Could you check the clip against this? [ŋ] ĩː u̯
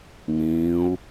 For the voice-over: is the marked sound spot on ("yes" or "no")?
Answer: yes